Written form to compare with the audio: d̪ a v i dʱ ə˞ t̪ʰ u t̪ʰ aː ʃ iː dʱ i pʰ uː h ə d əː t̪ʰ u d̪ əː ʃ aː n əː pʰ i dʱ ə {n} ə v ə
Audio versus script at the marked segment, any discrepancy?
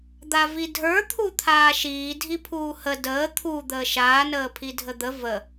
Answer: yes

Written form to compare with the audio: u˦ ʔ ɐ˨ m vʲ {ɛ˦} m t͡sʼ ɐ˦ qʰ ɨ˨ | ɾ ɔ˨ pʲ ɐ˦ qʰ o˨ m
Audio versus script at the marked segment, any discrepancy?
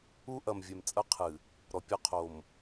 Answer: yes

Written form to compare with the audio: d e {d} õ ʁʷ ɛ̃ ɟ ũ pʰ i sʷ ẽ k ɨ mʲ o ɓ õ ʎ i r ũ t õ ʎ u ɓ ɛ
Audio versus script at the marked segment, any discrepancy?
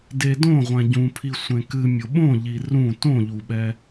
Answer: no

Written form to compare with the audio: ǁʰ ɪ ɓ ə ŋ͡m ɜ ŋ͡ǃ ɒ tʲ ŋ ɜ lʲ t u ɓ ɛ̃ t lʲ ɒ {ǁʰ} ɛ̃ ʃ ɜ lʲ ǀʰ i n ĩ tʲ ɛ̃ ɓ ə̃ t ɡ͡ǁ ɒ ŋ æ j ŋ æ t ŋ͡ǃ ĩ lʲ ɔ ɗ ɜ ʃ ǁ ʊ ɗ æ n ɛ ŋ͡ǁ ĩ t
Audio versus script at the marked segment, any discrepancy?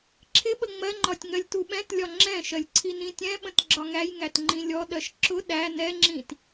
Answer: yes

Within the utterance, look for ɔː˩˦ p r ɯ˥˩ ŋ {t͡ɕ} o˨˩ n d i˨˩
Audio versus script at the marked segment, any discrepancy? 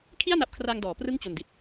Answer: no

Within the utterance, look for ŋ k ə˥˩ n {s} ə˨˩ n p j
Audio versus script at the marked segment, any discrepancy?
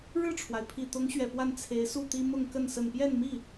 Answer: no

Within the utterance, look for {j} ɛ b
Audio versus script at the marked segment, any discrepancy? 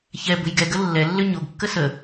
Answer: yes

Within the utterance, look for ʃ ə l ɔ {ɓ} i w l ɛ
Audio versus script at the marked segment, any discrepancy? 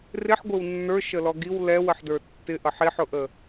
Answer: yes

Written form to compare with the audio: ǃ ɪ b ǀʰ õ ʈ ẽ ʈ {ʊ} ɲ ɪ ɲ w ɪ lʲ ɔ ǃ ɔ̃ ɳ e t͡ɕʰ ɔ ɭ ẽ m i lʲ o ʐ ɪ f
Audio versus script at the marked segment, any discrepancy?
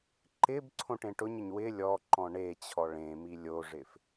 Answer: no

